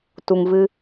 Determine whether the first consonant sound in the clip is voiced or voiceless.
voiceless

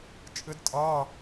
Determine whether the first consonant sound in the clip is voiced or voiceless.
voiceless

